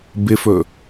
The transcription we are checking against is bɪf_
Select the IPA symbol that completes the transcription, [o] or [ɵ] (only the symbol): ɵ